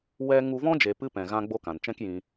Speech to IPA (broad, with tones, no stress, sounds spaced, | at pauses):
w ɛ˦ ŋ u˧ v ɔ̃˦ d͡ʒ e˨ p ɨ˦ p ɛ̃˨ ɣ ã˦ ɡ͡b o˦ k ã˨ n t͡ʃ ɛ̃˦ k j ĩ˧